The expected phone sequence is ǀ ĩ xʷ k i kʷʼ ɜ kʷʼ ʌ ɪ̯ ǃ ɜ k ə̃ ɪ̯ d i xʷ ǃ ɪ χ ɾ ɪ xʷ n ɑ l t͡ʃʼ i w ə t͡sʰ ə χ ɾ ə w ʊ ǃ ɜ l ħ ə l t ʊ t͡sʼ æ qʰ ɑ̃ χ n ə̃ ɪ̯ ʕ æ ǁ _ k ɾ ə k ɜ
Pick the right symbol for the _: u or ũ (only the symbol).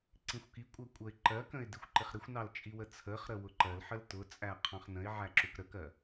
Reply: u